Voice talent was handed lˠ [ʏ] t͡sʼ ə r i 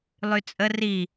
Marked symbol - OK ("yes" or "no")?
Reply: no